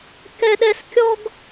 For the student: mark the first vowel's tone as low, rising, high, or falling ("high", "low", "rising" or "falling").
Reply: high